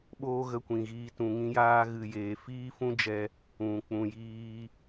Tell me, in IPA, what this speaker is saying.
ɓoː˦ɣə˧kʷĩ˨ɣiː˧ tũ˨ŋĩ˧jaː˧ ɣɨ˨jeː˨ fiː˦fũ˦d͡ʒɛ˧ | ũ˨ k͡pũ˨jiː˧

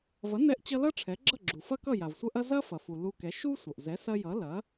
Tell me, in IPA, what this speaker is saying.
vɐ˩˥nɛ˧ʔt͡ɕʌ˧ lʌ˥ʈ͡ʂʰɛ˩˥ɡ͡ǁʌ˥˩ɡ͡ǁu˩ fɐ˥kʌ˥˩ ja˩vsʷɐ˥ʔɐ˥ zɐ˥fɐ˩fu˩ lu˧kɛ˩˥ ʃu˥ sʷʌ˩ʔ zɛ˩˥sɐ˧jʌ˩˥ lɐ˩˥

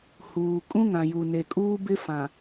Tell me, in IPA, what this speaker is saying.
huː˨ kʼũ˦ŋã˨ju˨ ne˨kʼuː˦bɪ˦fã˨

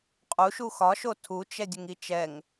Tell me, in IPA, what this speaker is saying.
qʼuʃu xɒʃo tʰut͡ʃɛdʲʊŋ it͡ʃɛŋ

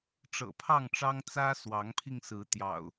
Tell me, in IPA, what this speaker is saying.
ʈ͡ʂɤ̰˨˩pʰɑ˥˨ŋʈ͡ʂɑ˦ŋ t͡sä˦ swɑ˨˦ŋpʰi˧ŋsɹ̩˨˦ t̪jɑ̰˨˩ʊ̯

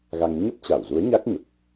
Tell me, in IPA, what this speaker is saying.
ɣa˧ŋ ɲə˦˥p̚t͡ɕa˧˩wzu˨˦ə̯ ɲa˦˥k̚ɲə˨˩p̚

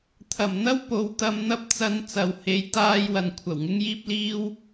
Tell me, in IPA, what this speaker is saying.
t̪ʰɐ˨˩mn̪ɐ˥w po˨˧wt̪ɐ˧m n̪ɐ˥p̚t͡sɐ˧n t͡sɐ˨whe˨˧jt̪aː˧j wɐ˨nkʷʰɐ˨˩w ŋɪ˥ŋjiː˥p̚liː˥w

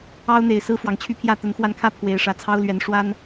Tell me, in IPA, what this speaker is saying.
ɑ˦ʊ̯n̪e˨˩ɪ̯ sɹ̩˦fwɑ˨˩ŋt͡ɕʰy˥˨pʰjä˥˨ t̪ə˨˦nxwa˧nkʰä˥˨ pʰwe˨˩ɪ̯ ʂä˨˦t͡sʰɑ˦ʊ̯lɥɛ˨˦nʂwa˦n

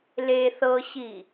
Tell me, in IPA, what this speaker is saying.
le θɤɕi

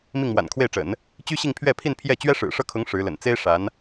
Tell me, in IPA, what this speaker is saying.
mi˥˩ŋmwa̰˨˩nkʰwe˥˩ɪ̯ʈ͡ʂə̰˨˩˦n | t͡ɕy˥ɕi˥˧ŋpʰɥɛ˥˧pʰi˥˧n pʰjɛ˥˩ t͡ɕɥɛ˥ʂɻ̩˨˩ʂɤ˥˩kʰʊ˧˥ŋ ʂɻ̩˧˥lə̰˨˩n t͡se˥ɪ̯ ʂa˧˥n

